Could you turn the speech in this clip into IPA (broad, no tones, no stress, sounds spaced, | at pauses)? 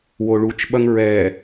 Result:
w o ɭ u t͡ʃ ɓ ɐ ŋ ɹ ɛ